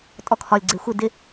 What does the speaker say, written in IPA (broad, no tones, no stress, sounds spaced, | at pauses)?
tʼ ɔ kʰ ɒ lʲ ɡ͡ǀ e xʷ ɪ d ɪ